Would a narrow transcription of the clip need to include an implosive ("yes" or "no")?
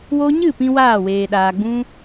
yes